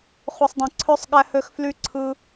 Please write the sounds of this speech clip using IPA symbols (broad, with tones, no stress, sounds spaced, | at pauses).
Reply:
χ u˨ sˤ dˤ ĩ˨ ǀʰ ø˦ sˤ ɠ æ˦ h ø˦ x f l y˦ ǀʰ ɯ˦